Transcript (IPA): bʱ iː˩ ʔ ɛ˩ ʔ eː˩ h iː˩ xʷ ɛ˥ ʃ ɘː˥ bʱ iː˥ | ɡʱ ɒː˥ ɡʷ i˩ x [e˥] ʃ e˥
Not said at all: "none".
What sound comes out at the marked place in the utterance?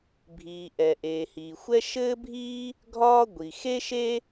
e˥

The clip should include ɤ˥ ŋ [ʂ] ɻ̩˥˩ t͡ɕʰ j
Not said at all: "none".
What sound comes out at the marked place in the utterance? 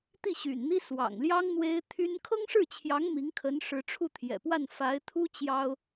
ʂ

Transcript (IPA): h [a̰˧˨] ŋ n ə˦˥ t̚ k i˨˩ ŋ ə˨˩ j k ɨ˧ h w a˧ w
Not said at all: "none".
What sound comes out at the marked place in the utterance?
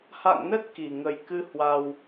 a̰˧˨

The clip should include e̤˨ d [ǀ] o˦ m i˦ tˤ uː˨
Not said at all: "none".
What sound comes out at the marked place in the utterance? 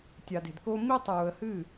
k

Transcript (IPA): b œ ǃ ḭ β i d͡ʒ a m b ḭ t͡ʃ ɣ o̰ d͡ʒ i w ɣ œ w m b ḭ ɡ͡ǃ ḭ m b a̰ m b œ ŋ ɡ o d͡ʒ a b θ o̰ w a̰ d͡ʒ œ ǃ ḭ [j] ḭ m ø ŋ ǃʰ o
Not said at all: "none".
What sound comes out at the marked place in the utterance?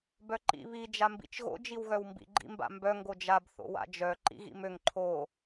ɣ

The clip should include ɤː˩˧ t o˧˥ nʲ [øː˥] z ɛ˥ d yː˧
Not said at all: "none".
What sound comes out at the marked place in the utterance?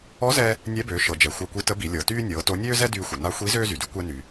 øː˥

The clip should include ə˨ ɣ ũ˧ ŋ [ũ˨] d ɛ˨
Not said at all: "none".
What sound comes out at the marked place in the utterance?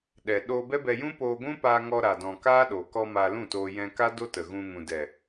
ũ˨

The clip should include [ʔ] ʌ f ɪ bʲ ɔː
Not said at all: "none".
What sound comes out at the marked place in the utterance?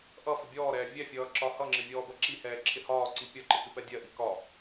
ʔ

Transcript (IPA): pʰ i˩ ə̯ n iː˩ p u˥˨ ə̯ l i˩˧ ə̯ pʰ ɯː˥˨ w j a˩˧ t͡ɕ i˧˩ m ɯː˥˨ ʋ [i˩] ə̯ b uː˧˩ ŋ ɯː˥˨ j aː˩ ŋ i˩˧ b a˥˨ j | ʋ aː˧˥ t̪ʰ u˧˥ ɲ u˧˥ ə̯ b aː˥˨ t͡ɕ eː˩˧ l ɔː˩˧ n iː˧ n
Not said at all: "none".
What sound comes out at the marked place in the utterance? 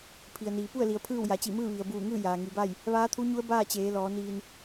i˩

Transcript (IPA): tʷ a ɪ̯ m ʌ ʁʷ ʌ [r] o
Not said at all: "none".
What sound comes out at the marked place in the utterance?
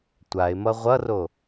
r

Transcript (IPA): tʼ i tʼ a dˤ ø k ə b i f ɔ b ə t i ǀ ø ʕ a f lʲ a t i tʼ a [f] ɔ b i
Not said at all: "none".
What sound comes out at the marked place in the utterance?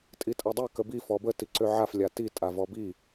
v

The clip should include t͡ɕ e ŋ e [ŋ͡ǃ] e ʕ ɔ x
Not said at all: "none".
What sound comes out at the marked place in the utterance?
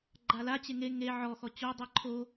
ŋ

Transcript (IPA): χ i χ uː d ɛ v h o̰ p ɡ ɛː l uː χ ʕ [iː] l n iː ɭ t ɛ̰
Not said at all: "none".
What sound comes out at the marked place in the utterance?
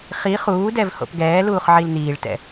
i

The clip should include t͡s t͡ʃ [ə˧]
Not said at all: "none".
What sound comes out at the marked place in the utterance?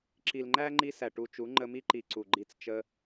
ə˧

